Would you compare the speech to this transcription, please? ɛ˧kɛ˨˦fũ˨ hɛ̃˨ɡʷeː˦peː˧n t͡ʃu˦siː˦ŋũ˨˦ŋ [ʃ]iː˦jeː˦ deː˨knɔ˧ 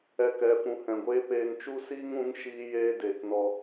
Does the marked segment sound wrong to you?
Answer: no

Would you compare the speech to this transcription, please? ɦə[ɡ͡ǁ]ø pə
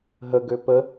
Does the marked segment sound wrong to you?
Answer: yes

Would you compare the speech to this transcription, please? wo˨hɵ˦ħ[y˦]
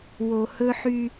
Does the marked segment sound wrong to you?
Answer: no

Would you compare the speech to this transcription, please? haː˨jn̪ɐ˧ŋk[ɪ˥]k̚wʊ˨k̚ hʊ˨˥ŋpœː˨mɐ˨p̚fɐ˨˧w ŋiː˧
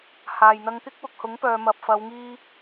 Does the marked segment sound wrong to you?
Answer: no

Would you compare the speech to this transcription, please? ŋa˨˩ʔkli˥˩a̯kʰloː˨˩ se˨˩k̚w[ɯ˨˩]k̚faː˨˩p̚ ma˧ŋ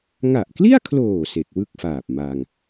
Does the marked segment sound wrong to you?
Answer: yes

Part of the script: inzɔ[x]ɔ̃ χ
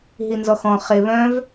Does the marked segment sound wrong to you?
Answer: no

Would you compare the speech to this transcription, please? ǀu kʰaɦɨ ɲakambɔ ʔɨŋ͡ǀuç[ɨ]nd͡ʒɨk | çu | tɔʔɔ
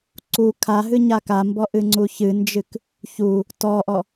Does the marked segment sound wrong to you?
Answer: no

